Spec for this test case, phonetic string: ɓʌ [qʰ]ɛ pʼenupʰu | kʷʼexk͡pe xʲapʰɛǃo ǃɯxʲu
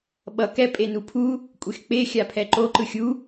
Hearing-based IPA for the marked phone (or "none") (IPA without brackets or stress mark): k